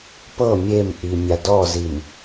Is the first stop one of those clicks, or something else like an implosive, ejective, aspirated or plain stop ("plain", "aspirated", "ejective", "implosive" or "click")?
plain